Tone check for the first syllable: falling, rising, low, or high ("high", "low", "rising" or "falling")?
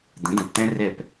rising